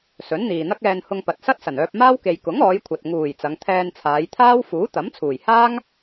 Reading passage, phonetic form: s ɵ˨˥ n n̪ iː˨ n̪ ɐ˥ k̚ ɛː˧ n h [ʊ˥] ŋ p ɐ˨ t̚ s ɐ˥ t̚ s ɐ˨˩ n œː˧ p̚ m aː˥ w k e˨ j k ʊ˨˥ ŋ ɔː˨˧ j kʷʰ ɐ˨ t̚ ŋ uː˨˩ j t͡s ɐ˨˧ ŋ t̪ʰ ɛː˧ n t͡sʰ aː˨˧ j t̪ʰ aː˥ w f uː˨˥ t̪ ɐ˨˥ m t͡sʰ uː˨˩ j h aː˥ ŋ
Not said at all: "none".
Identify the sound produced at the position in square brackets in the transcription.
ʊ˧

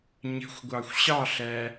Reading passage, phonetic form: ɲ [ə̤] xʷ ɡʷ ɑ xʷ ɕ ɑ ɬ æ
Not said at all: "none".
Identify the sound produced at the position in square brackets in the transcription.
ə̤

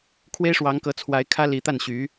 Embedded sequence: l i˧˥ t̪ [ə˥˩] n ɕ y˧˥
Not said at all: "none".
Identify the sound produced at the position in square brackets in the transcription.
a˥˩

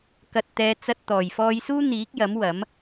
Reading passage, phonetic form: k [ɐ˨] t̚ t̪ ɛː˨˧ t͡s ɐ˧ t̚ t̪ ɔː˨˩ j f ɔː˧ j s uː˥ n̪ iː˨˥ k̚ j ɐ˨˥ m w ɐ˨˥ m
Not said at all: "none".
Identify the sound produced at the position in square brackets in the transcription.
ɐ˨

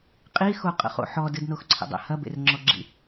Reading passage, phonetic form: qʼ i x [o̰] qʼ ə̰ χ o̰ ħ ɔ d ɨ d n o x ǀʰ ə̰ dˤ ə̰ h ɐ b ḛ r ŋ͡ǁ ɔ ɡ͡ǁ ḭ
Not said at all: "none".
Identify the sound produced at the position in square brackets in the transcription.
o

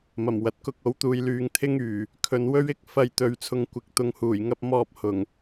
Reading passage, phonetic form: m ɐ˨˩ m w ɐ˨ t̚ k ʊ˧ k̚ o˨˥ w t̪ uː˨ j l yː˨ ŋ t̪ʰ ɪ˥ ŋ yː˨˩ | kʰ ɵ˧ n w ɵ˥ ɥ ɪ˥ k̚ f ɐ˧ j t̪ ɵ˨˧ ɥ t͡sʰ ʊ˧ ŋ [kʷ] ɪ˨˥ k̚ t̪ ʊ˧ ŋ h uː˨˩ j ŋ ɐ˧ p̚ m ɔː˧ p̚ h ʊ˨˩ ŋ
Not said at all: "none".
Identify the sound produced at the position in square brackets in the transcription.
kʷ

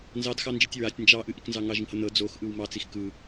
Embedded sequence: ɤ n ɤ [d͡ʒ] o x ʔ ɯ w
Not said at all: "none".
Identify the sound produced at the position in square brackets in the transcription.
d͡z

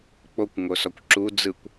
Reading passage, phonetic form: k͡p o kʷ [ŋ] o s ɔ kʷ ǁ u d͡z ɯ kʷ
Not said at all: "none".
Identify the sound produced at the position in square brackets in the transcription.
ŋ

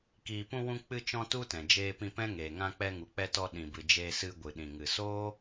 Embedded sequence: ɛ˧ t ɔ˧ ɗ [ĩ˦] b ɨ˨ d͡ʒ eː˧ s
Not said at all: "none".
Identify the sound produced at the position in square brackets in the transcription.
ĩ˨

